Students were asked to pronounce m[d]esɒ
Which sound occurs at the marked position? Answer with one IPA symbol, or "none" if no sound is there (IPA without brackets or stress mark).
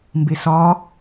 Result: b